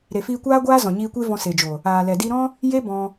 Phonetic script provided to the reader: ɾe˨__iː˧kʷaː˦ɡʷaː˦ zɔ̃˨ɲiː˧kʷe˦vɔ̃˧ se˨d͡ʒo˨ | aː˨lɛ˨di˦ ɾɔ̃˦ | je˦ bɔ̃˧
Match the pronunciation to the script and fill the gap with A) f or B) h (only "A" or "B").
A